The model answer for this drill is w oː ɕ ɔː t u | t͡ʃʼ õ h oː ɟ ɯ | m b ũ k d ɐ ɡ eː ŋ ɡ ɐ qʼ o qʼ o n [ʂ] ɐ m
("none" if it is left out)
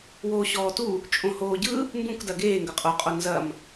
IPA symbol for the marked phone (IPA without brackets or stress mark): z